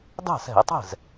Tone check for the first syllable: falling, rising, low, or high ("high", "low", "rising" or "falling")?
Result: falling